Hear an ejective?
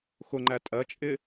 yes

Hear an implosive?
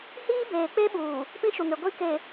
yes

